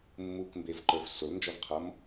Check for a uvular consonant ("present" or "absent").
present